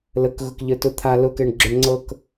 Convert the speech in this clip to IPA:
l ə k ɣ ʊ k ʎ ə˞ t ʊ t̪ʰ a l ʊ k ɛ ɳ ɡ͡ǁ ə ɳ ŋ͡ǀ ɤ k

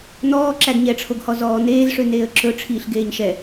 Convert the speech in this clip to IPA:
n̪ ɔː ǁ æ ɡ ɲ ɛ ʈ͡ʂʰ o ɡ h ɔ z ɔː n̪ eː z ʂ ø n̪ eː ə̯ ǁ ɵ ʈ͡ʂʰ iː ɬ ɡ eː ɲ ʃ ɛ

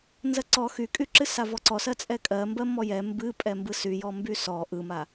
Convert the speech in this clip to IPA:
n z ɜ ǀ ɔ x y kʼ y ǁ ɨ s a v ɔ ǀ ɔ s ɜ t͡sʼ ɛ kʼ ɜ m b ɜ m ɔ j ɛ m b ɨ pʼ ɛ m b ɯ s y j ɔ m b y s ɔ ʔ ɯ m a

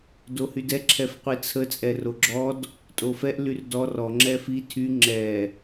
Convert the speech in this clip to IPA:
d o h y d ɛ ǁʰ ɛ f qʷ i t͡sʰ ə t͡sʼ ɛ r o ɡ͡ǁ ɔ d | tʼ o f ɛ ʔ l y r d ɔ r ɔ ŋ͡ǁ ɛ f i tʰ y ŋ͡ǁ ɛ

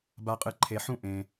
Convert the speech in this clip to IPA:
b a˨ qʼ ɨ˨ ǃʰ e˨ ħ ũ˦ ʔ ẽ˨

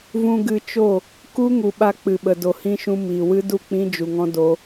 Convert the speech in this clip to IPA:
v ũ˧ ɡ ɨ˧ t͡ʃ o˦˨ | k u˦ ŋ u˨ ɓ a˧ k͡p ɨ˨ ɓ ə˨ d o˨ h ĩ˧ ʃ ũ˧ m iː˨ w ɨ˦ d u˦˨ k͡p ĩ˦ d͡ʒ u˨ ŋ ɔ̃˦ d o˧

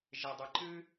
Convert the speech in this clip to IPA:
ʒ e dˤ ɨ ǃ ɨ

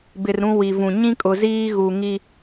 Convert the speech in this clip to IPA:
b ɪ˨ r ɾ ũ˦ w i˨ v ũ˨ ɲ ĩ˦ kʼ ʊ˨ z iː˦ ɣ u˨ ŋ i˦

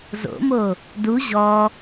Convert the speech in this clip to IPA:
z o̰ m o | d u ʑ ɔ

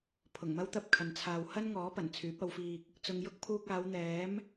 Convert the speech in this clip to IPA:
pʰ ʊ˨˩ ŋ m ɐ˥ w t̪ ɐ˥ p̚ kʰ ɐ˨ n t͡sʰ aː˨ w h ɐ˥ n ŋ ɔː˨˥ p ɐ˨˩ n t͡sʰ yː˨˥ p̚ ɐ˨˧ w f iː˧ k̚ | t͡s ʊ˨ ŋ j ʊ˥ k̚ pʰ uː˧ k̚ aː˨˧ w n̪ ɛː˨˥ m

